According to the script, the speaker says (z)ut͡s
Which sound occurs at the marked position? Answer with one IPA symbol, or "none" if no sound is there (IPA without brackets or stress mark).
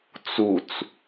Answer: t͡s